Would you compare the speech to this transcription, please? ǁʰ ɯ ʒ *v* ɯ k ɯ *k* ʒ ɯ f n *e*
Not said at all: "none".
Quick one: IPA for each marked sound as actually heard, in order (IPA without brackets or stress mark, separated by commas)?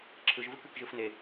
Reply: v, k, e